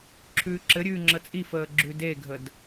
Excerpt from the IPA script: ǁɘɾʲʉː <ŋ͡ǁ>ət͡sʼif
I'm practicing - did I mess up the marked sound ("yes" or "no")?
no